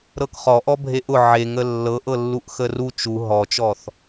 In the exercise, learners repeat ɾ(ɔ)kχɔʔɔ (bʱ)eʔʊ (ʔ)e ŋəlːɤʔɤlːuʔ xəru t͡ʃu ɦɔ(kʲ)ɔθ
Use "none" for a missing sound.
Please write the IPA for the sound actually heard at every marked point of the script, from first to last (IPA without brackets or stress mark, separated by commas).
ɤ, bʱ, ʕ, t͡ʃ